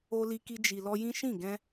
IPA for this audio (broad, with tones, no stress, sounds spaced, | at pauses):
o˧ l i˧ k i˧ d͡ʒ i˨ l ɔ˧ j ĩ˦ ʃ ĩ˦˨ ɡ ɛ̃˧